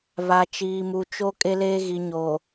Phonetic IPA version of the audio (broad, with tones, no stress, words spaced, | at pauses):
βa˨t͡ʃiː˨mu˨ t͡ʃo˦ kʼe˦leː˦ ɣi˨ɲoː˨